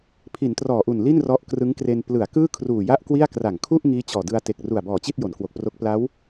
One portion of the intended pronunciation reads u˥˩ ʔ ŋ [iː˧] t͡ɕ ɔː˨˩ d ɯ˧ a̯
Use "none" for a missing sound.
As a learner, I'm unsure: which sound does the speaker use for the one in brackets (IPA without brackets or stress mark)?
iː˦˥